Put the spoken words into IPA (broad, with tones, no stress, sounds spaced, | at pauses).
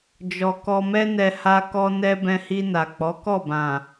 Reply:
d͡ʒ ɔ˧ k ɔ˧ m ɛ˦ n ɛ˧ h a˧ k ɔ˧ n ɛ˧ b ɛ̃˧ h i˧ n a˨ k͡p ɔ˨˦ k ɔ˦˨ b ã˨